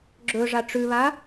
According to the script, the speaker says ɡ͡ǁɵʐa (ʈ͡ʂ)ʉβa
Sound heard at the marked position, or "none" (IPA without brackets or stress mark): ʈ͡ʂ